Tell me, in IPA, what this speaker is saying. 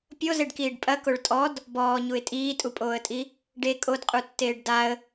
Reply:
pʲozeɖkiːɖ pʼɐkoɭ tʼɔd | bɔːɲuɪ̯ tʼiːtʼupʼoːə̯tʼi | ɖe kʼodqʼutːeːɖ daə̯

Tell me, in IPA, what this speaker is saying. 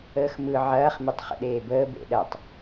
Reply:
əːxmɯ ʕɐːχ mitˤχə̰ɗeːbəː bḛɗɐtˤ

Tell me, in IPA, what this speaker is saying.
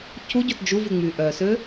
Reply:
cʰuɟɵt d͡ʒuvʉ ŋ͡myʔœsø

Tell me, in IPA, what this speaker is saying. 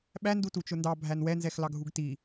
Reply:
ɓæ ndutut͡ʃʊndɑ bʱænwɛ nzɛxlɑɡʱuɡti

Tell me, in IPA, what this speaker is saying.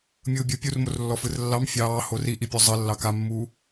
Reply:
mʲɯːbʲɯ pʲurmorlːɔ fɯrlːɑm fʲɑːhor iʔipʲo zˤɘ lːɑkamːuː

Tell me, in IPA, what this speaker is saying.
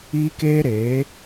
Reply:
iː˦keː˦ɾeː˨˦

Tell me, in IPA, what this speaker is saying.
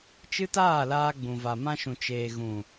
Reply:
t͡ʃɨ˦taː˦˨laː˧ ɡ͡bũ˨ va˨mã˧ʃũ˨ t͡ʃeː˨ɣũ˨

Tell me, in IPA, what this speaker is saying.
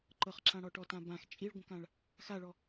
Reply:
ǃɤχǁãɽɔʈɔ tãbãx t͡ʃʼiɭɡʷə̃kãɭ | xaɭɔ

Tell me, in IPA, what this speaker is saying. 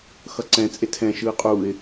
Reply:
xʌǀɛ̃ t͡sʼetʰɛ̃ ʃɯːqʼuɪ̯

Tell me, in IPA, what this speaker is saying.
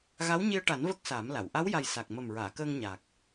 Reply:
ɣa˧˥wɲi˧ə̯ʈa˨˩˦n və˦˥k̚saː˨˩˦mla˨˩˨w ʔa˧˥wja˨˩j sa˨˩k̚ mə˨˩mɹaː˨˩˨ kəː˧ŋɲa˨˩k̚

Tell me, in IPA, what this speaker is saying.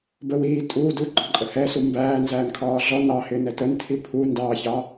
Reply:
bə wiː tʼuː duɡ͡ǃɒ ǃʼəhɛsu mbæː nzæːnkʰɒːɮɔ nɑhɪːnɛ təntʰi pʰu ndɑːçɑ

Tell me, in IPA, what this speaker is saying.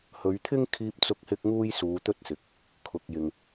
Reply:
hɵ˨˧ɥ t̪ʰɪ˥ŋ kʰiː˧p̚t͡sʊ˧k̚hɪ˧k̚ ŋuː˥jsuː˨˧t̪ɵ˥t̚ sɪ˨˥k̚ | kʰʊ˨k̚jɪ˨ŋ

